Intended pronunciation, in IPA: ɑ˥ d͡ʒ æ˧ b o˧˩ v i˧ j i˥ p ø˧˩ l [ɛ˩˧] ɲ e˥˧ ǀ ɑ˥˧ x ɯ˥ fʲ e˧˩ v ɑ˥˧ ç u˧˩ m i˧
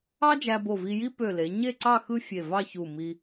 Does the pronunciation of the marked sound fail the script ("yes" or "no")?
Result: yes